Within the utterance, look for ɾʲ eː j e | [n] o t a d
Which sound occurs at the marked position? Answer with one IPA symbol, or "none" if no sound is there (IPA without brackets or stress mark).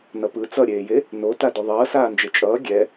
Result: n